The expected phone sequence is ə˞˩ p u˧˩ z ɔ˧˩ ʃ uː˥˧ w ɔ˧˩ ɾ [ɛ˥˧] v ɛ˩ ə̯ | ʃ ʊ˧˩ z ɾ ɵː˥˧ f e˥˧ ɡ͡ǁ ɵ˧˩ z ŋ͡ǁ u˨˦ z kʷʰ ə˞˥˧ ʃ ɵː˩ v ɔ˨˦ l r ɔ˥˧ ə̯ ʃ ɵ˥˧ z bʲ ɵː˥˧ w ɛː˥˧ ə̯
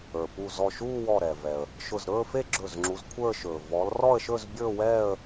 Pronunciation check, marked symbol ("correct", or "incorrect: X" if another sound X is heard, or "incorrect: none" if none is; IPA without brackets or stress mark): incorrect: ɛ˩